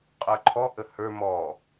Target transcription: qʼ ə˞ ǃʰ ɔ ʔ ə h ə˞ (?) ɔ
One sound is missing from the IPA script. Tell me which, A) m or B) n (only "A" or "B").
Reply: A